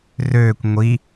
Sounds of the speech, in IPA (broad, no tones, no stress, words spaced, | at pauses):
røːkʷ ŋʷi